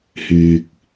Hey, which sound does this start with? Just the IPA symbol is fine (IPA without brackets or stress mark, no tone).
h